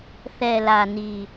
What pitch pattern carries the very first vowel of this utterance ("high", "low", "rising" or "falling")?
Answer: low